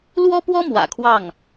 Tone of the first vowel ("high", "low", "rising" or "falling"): high